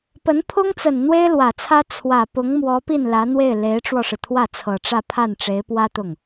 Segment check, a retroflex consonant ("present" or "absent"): present